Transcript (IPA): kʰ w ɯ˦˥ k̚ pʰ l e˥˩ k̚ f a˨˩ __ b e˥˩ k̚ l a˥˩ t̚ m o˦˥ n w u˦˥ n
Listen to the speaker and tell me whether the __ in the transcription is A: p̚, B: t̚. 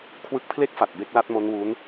B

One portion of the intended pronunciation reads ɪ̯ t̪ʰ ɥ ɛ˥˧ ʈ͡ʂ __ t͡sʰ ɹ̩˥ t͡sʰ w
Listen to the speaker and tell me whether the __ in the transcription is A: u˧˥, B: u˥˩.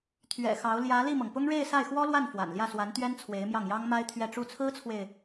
B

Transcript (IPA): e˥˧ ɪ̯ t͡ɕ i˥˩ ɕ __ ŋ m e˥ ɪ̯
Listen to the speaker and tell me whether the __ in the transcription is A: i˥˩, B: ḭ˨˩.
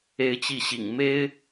B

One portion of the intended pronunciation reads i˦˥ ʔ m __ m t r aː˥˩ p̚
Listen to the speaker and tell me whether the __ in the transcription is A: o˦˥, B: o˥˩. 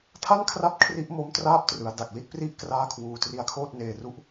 A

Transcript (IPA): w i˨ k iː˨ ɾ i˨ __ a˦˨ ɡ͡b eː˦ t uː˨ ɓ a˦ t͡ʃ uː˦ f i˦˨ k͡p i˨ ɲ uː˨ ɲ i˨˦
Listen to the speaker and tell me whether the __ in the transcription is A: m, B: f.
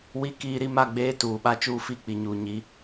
A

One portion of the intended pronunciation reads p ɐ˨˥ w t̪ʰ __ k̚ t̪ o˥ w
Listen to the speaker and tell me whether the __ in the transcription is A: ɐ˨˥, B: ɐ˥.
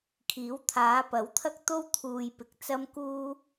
B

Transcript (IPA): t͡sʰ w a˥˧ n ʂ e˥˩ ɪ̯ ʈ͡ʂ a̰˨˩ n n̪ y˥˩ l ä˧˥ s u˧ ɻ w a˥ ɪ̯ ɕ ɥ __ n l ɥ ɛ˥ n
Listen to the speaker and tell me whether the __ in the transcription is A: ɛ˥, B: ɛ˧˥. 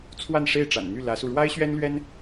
A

